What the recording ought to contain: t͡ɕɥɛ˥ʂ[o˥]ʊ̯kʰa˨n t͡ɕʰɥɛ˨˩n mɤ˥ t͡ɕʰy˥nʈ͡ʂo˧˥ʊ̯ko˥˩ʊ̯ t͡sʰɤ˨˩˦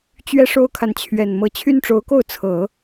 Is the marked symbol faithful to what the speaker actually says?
yes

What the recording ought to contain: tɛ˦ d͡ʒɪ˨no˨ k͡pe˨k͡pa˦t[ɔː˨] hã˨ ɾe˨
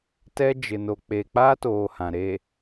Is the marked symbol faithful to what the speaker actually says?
no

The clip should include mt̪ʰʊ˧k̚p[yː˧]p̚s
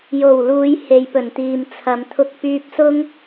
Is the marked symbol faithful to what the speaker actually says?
yes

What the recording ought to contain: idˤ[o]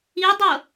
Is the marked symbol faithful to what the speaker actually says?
yes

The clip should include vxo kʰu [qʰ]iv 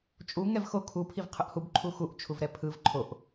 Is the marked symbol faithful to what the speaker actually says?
no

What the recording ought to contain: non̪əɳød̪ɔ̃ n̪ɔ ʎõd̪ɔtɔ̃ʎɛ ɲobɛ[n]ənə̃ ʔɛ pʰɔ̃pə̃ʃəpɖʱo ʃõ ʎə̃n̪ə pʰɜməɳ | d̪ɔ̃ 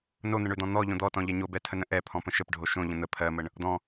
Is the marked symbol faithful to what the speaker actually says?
no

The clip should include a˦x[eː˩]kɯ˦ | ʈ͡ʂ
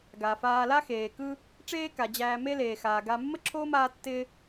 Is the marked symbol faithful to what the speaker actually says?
yes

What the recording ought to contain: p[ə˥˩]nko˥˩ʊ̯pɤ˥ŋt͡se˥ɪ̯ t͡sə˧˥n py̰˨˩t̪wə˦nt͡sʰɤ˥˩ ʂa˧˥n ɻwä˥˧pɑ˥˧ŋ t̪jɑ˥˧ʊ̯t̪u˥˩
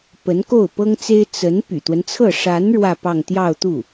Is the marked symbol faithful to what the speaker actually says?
no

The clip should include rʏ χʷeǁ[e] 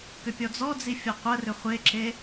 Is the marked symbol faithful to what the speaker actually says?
yes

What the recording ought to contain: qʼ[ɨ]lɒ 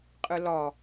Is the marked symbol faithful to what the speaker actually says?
yes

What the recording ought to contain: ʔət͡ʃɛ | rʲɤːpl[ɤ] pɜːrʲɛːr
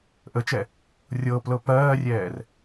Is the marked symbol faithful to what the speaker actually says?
yes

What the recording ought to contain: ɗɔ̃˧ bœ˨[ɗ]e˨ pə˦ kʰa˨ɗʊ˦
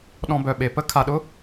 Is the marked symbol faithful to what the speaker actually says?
no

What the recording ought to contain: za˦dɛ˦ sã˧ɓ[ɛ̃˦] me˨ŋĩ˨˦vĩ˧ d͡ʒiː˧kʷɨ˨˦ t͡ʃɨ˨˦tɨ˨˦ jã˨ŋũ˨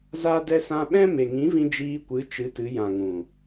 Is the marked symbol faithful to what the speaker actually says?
yes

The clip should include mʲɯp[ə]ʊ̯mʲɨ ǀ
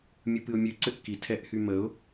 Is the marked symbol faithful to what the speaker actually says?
no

